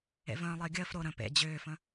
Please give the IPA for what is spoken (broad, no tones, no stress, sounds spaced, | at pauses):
ḛ v ə̃ː lˠ əː ɡʲ əː f ɾ o ɾ ə̃ p ḛ d͡ʑ ʏː f ə̃